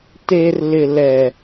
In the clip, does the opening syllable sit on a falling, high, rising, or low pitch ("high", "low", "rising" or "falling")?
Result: low